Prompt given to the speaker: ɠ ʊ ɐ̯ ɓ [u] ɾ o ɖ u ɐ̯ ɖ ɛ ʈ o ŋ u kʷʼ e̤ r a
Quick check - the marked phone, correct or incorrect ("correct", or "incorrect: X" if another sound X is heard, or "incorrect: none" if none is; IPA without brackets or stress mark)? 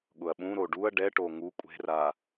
incorrect: ũ